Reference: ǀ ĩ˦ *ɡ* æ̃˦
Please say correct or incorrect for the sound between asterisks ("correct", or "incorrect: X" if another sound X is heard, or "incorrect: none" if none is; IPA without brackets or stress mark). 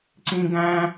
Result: correct